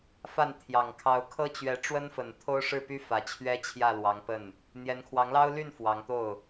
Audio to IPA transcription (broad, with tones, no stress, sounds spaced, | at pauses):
f a˥˩ n t̪ʰ j ɑ˨˩ ŋ kʰ ɑ˧˥ ʊ̯ kʰ ɤ˥ t͡ɕ ɥ ɛ˧˥ ʈ͡ʂ w ə˥ n f ə˨˩ n t̪ʰ o˥ ʊ̯ ʂ ɻ̩˥˩ p y˥ f ä˨˩ t͡ɕʰ ɥ ɛ˥ t͡ɕʰ j ä˥˩ l w ɑ˧˥ ŋ p ə˥˩ n | n̪ j ɛ˧˥ n kʰ w ɑ˧˥ ŋ l ɑ˥ ʊ̯ l y˥˩ n f w ɑ˧˥ ŋ t̪ o˥˩ ʊ̯